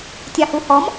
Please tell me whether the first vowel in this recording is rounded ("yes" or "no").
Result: no